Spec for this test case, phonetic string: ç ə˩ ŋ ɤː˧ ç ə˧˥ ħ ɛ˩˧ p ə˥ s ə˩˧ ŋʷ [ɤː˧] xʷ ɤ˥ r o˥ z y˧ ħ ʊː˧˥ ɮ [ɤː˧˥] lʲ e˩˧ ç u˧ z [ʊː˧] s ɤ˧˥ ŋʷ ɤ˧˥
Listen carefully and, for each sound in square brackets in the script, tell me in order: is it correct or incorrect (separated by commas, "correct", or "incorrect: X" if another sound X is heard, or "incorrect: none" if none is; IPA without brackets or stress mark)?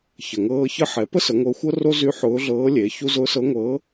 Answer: incorrect: ɤ˧, correct, correct